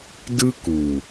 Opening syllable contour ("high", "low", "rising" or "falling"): high